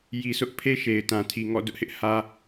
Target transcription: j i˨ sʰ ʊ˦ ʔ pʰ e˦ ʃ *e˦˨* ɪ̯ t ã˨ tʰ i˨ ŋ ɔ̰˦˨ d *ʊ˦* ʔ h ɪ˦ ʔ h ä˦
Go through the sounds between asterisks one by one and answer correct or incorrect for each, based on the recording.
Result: incorrect, correct

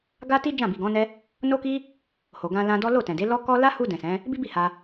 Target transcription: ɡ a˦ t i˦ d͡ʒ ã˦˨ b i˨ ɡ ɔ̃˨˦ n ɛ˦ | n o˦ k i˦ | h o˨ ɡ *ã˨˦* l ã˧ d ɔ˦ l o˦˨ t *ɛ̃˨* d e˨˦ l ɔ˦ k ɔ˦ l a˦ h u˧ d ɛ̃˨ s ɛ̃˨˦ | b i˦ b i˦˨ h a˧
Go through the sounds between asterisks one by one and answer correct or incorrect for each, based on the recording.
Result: incorrect, correct

